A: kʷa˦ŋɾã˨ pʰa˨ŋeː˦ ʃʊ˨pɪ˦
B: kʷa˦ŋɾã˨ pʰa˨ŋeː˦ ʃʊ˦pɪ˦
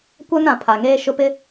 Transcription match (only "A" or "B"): B